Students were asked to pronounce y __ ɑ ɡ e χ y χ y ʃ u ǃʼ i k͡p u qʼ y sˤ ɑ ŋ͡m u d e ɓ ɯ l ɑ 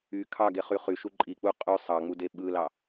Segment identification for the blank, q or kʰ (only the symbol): kʰ